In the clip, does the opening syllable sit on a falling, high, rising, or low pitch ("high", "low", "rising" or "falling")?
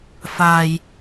low